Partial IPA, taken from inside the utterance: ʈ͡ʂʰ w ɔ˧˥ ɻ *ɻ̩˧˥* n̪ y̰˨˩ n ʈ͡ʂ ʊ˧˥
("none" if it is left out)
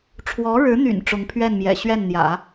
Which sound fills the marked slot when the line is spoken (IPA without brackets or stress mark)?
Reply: ɻ̩˧˥